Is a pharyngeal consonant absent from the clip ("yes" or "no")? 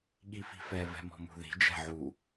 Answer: no